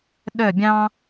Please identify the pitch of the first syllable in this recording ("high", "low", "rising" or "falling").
falling